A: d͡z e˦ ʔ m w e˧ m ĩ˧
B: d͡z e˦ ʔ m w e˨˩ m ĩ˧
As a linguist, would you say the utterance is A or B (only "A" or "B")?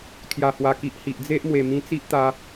B